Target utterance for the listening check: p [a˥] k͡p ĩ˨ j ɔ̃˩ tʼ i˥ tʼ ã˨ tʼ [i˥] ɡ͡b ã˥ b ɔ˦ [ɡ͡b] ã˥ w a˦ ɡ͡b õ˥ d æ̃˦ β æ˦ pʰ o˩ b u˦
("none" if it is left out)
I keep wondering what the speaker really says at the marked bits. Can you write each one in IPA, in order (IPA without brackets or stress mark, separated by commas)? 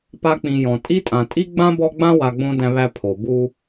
a˦, i˥, ɡ͡b